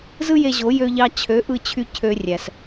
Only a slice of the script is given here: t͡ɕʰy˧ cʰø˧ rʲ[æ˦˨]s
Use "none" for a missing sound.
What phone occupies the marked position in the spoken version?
æ˨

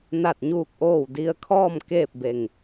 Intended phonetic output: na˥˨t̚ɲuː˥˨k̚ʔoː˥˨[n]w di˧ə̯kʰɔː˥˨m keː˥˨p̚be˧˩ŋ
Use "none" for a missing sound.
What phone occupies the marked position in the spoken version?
none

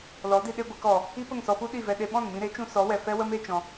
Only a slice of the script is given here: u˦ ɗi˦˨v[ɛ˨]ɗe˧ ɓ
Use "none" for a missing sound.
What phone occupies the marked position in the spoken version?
ɛ˧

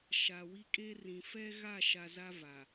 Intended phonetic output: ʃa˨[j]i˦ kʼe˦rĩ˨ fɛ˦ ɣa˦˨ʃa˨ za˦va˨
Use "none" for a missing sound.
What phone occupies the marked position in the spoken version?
w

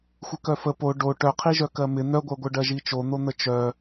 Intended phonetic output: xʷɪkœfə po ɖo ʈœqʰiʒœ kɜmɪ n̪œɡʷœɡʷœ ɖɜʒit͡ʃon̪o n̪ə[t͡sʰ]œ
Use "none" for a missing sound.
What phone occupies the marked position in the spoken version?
t͡ʃ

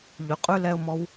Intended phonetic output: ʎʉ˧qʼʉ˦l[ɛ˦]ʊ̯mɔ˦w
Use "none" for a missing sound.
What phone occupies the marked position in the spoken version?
ɛ˦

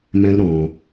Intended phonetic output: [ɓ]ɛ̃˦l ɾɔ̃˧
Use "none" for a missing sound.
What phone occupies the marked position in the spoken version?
m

